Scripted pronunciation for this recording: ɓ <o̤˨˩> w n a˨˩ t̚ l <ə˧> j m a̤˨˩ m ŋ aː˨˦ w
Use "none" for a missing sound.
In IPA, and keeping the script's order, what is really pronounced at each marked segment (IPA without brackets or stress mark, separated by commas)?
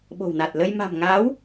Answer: o̤˨˩, ə˧